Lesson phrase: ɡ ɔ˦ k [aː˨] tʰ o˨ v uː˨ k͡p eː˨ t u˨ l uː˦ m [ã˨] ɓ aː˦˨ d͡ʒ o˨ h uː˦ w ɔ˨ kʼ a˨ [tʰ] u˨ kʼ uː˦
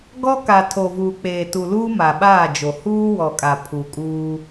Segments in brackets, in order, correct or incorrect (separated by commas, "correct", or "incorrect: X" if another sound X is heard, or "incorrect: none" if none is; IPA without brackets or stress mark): incorrect: a˨, incorrect: a˨, incorrect: pʰ